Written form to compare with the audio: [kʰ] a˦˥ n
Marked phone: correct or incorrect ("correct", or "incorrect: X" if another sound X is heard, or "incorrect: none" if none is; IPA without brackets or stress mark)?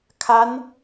correct